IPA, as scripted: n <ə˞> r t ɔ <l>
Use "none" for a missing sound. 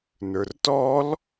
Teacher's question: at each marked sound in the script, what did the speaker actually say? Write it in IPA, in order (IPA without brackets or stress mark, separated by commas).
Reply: ə˞, l